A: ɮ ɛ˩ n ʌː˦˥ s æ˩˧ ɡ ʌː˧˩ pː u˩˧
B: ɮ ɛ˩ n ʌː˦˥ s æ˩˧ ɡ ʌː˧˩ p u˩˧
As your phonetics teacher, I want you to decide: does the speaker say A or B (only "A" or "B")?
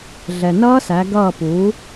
B